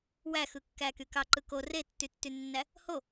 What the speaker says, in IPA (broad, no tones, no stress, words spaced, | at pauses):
wæxɯkːæky kɑǃɯko retːytːynːæ | ho